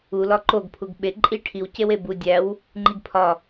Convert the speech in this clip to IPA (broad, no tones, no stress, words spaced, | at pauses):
ulɒ ǃoɡpʰuɡ ɓe ǃʼi ʈʰiw cewebu dʲæw | ŋ͡ǃiɡpʰɒ